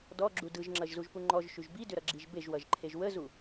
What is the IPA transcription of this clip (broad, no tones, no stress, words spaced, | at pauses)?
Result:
dɔɡ͡ǁu dɯʒŋ͡ǁʌʒzuʒpu ŋ͡ǃɔʒʃyʒ bidʏɾʌɡ͡ǁiʒ beʒwʌʒǃʰeʒ wəzu